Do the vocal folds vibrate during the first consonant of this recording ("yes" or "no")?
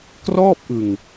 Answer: no